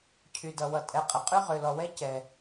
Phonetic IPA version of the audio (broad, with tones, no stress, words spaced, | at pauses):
cʰy˩dʌ˩wʌ˩ tʼɛ˩qʼə˩ qʼy˥ʁø˩lɔ˩wɛ˥ cɛ˩